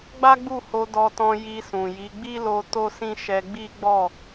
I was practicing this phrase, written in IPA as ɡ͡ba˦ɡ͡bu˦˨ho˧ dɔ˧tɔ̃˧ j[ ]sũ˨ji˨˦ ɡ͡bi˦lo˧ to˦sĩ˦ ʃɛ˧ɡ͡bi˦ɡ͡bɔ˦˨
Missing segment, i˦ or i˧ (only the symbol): i˧